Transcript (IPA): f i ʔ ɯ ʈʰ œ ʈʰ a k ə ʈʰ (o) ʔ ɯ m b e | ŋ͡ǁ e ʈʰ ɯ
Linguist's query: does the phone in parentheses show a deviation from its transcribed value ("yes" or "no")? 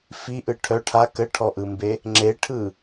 yes